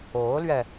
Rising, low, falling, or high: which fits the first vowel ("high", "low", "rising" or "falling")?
rising